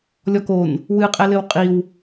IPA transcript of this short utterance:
lʲ ɔ k o n | w ɨ qʼ ɛ l ɘ w qʼ i w

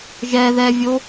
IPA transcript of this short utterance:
ʒ ɛ ð ɛ vʲ o

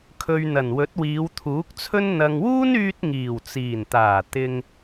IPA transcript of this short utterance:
kʰ ɵ˨ ɥ n̪ ɐ˨˩ n w ɵ˨˥ t̚ w iː˨˧ w t̪ʰ uː˨˥ k̚ t͡sʰ ɵ˥ n n̪ ɐ˨ ŋ w uː˥ n yː˧ t̚ ŋ iː˨˩ w t͡s iː˨˩ n t̪ aː˨˩ t̪ ɪ˧ ŋ

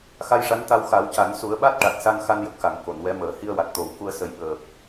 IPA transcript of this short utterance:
x a˧ j ʂ a˧˥ n t̪ a˧ w x a˨˩˦ w c a˨˩˦ n s u˨˩˦ ə̯ ɓ a˦˥ t̚ ʈ a˨˩ t̚ s a˧ n x a˧ n j ə˨˩ k̚ x a˨˩˨ ŋ k o˨˩˨ n w ɛ˧˥ m əː˨˩˦ h i˧ ə̯ w a˨˩ t̚ t̪ o˨˩˦ w k u˧ ə̯ s ə˨˩˦ j ɓ əː˨˩ p̚

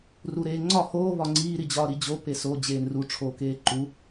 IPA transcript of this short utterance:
r u ɾ eː ŋ͡ǀ ɒ h oː β ɒ ŋ͡ǀ iː ɾ i d͡ʑ ɒː ɾ i d͡ʑ o p e s o d͡ʑ eː n r u ʈ͡ʂʰ oː k eː ǃ u

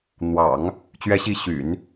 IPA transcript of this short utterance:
n̪ w ɑ̰˨˩˦ ŋ | t͡ɕ ɥ ɛ˧˥ ɕ i˧˥ ɕ y̰˨˩˦ n

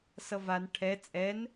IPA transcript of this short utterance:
s ʌ v a n ʈʰ ɛ t͡sʼ ɛ n

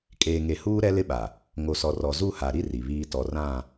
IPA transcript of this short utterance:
kʼ eː˨ ŋ e˨ h uː˦ ɾ ɛ˦ l ɪ˦ ɓ a˨ | ŋ o˨ s ɔ˨ r ɔ˨ z u˦˨ h a˨ ɾ i˦ r i˨ β iː˦ t ɔ˨ r ã˦˨

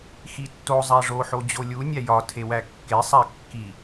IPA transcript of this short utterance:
x i tː o zˤ æ ʐ o ħ o d͡ʑ o lʲ u nʲ æ j ɒ tʰ e w æ kː e sˤ æ kː i

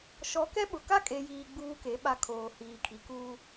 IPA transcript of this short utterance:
ʃ ɔ˨˦ k ɛ˦ ɓ ʊ˨ k a˦ kʼ e˨ j iː˨ ɡ͡b uː˦ k e˨˦ ɓ a˦ kʰ oː˨ h iː˨ kʰ i˨ k uː˦

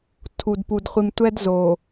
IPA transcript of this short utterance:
tʰ u˨ d p u˨ d χʷ i˨ m tʷ ɛ˦ d z o˨

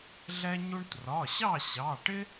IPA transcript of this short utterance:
ɮ ɛ˥ ɲ u˥ ɳ t r ɒ˩˧˩ ɕ ɑ˥˨ ɕ ɑ˩˧˩ ʈ ɪ˥

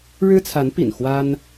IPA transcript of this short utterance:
ɻ ɻ̩˥ t͡sʰ a˧˥ n p ḭ˨˩ n x w a˥ n

